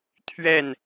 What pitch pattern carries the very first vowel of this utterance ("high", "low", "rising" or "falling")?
falling